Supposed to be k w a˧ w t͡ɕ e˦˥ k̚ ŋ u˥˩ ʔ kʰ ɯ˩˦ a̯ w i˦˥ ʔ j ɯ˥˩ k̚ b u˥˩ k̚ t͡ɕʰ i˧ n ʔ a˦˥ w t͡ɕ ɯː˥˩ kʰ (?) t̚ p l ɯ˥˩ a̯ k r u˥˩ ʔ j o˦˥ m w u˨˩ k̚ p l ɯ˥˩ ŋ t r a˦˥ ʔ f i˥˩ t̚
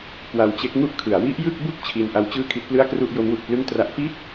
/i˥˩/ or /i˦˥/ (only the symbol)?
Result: i˦˥